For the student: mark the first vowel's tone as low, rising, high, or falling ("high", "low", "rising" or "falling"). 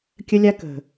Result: high